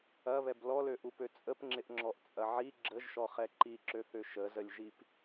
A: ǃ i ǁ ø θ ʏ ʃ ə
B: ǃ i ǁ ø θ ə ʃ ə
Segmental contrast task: A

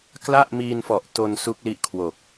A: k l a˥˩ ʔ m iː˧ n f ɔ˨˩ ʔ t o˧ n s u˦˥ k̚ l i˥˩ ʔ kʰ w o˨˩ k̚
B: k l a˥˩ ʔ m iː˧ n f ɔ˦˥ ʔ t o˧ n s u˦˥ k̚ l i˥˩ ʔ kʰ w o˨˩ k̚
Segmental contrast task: A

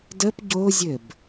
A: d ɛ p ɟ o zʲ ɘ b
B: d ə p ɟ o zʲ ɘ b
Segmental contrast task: B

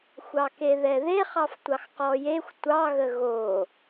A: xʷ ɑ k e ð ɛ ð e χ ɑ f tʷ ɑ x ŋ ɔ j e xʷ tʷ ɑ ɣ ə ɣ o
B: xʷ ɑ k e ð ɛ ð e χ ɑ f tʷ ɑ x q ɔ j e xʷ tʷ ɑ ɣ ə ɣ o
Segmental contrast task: B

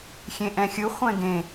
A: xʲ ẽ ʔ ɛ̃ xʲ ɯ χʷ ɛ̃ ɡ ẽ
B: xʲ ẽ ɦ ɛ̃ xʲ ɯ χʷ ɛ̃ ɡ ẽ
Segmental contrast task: A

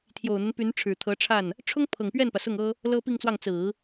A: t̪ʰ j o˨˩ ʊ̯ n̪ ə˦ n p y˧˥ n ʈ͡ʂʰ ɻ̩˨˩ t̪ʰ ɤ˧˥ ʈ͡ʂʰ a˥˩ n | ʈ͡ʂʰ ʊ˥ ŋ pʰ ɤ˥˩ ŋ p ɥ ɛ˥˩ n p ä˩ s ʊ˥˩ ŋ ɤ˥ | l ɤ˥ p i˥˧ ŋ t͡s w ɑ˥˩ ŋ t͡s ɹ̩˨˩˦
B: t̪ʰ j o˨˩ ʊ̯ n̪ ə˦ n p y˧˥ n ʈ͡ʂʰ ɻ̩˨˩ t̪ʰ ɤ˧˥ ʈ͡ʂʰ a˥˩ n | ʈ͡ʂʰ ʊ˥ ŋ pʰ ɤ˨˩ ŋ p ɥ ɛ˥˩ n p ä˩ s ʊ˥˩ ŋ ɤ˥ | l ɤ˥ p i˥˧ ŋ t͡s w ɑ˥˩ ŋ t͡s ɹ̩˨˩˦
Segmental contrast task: B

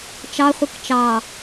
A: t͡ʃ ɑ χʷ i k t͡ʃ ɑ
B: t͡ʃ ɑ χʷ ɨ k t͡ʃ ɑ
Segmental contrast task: B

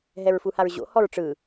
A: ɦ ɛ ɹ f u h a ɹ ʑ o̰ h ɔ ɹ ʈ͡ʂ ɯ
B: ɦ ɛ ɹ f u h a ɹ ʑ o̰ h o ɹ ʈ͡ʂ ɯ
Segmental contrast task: A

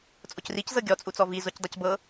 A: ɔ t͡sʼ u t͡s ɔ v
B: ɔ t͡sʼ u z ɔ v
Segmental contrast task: A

